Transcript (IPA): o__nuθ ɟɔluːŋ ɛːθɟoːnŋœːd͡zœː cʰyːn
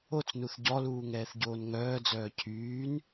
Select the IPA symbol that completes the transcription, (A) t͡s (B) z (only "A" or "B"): A